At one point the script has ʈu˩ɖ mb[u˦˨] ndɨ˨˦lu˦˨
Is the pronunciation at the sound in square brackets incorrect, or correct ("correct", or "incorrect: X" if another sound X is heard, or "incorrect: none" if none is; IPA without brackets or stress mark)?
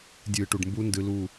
incorrect: u˦˥